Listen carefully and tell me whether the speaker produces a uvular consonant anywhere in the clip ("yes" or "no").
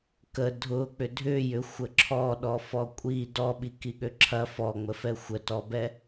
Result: no